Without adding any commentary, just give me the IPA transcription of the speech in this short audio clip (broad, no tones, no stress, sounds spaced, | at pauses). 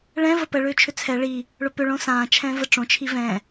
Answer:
ɭ ɛ̃ v ə p ə ɭ ʏː t͡ʃʰ ʏ t͡sʰ ɛ ɭ i | ɭ ʊ p ʏ ɭ õ s ãː t͡ʃʰ ɛ̃ v ə ʈ͡ʂ õ t͡ʃʰ i v ɛ̃